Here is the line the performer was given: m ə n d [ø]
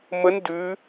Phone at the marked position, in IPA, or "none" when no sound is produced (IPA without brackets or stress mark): ʉ